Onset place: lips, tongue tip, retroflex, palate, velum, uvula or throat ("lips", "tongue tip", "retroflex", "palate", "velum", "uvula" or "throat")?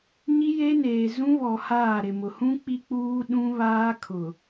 palate